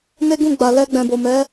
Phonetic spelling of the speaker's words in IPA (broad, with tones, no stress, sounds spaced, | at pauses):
n e˦ ɡ ũ˦˨ ɡ͡b a˨ l ɛ˧ ɡ͡b ɛ̃˨ b o˨ m ɛ˨˦